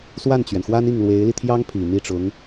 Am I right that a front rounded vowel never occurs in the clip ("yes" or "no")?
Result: yes